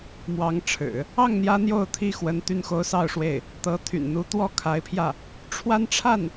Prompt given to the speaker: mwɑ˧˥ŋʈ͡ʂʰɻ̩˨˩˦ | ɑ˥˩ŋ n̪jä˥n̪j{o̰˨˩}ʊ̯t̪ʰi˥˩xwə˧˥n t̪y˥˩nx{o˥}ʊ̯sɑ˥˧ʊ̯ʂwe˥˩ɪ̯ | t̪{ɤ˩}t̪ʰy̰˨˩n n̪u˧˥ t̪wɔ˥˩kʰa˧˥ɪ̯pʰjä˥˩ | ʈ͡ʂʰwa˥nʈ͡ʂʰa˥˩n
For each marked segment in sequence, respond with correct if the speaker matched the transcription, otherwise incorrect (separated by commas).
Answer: incorrect, correct, incorrect